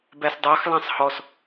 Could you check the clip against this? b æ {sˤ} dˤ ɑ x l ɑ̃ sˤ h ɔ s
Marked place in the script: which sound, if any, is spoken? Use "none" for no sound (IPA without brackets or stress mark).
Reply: s